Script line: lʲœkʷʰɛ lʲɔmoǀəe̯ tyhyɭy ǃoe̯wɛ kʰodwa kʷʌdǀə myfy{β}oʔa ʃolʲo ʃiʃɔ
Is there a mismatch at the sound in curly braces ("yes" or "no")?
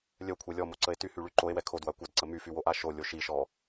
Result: yes